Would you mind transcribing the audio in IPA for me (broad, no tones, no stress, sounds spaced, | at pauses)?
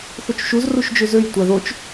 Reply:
θ o t͡ʃ ʃ u z r u ʃ d͡ʒ ø z ø j tʷ a ð o t͡ʃ